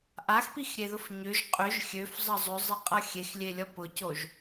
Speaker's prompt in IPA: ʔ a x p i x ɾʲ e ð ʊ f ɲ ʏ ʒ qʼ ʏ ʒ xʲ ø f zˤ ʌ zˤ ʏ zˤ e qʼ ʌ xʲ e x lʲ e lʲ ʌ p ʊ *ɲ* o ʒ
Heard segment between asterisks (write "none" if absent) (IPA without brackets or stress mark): c